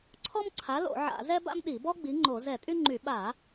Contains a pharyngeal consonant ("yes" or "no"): yes